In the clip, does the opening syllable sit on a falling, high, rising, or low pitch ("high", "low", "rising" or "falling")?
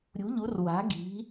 rising